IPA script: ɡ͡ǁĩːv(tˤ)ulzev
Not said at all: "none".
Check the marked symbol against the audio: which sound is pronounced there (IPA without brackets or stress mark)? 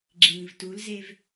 t